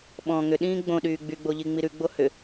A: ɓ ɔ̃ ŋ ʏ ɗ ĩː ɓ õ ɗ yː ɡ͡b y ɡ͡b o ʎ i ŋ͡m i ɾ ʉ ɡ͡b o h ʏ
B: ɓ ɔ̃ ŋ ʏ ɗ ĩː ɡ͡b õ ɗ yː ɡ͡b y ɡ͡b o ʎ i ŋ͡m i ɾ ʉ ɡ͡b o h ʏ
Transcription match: B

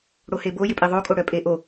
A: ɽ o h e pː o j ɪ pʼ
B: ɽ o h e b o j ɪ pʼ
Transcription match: B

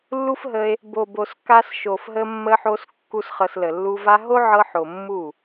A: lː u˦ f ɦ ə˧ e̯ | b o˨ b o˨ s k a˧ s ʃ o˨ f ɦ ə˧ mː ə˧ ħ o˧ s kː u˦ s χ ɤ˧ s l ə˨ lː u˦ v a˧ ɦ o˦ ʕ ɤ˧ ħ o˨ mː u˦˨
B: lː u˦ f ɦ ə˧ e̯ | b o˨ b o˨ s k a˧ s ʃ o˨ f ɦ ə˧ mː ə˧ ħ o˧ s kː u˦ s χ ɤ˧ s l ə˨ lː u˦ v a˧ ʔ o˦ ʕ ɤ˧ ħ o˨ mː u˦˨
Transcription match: A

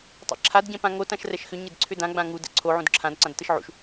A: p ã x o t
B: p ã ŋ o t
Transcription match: B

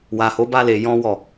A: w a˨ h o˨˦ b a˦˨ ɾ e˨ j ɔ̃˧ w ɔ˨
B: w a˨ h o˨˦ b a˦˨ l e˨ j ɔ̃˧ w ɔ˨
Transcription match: B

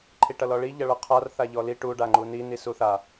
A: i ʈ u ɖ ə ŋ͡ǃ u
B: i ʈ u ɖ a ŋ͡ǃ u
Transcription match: B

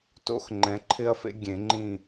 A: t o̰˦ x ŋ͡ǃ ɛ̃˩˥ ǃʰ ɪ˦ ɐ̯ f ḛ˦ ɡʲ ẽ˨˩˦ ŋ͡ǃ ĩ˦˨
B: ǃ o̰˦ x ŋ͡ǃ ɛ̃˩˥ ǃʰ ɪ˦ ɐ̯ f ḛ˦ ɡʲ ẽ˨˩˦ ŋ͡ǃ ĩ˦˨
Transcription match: A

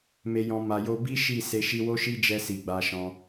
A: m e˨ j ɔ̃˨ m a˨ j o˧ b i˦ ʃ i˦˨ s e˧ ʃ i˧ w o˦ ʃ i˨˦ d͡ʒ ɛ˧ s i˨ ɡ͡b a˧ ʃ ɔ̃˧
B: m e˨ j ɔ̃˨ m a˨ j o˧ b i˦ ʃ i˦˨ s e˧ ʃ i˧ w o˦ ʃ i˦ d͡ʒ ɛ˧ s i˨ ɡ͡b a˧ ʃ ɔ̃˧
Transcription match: B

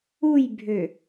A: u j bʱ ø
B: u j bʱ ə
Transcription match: A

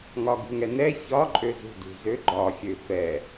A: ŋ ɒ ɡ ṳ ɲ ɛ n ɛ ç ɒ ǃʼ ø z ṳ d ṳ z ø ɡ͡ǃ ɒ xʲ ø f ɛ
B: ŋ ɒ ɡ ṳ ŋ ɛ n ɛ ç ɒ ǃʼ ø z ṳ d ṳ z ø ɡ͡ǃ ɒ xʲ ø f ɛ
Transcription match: B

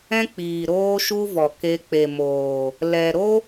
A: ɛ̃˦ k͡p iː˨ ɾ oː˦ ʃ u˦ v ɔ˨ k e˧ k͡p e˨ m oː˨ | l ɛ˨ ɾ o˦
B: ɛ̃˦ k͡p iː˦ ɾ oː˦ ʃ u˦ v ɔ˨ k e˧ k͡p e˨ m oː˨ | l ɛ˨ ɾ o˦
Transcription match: A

